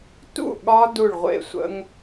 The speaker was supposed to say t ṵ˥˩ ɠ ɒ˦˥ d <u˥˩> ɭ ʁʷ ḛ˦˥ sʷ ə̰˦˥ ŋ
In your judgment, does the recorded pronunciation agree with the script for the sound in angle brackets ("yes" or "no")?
yes